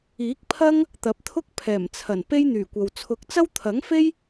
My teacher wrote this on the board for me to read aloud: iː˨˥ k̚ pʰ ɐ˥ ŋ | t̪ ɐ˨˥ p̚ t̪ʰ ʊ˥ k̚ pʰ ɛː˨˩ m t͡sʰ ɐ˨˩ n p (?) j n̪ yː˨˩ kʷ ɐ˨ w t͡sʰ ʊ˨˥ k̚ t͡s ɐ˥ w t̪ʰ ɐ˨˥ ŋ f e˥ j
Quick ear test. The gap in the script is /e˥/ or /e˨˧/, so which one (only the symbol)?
e˥